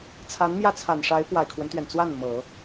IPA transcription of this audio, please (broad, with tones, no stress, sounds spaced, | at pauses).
t͡sʰ a˧˥ n m j ä˥˩ t͡sʰ a˨˩ n ʂ a˧˥ ɪ̯ p w a˨˩ ɪ̯ kʰ w ə˦ n t̪ ɥ ɛ˩ n t͡s w a˥˩ n m ɤ˨˩˦